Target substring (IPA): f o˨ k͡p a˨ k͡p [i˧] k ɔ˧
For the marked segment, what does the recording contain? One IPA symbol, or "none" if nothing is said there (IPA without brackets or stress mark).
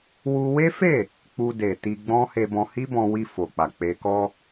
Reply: e˧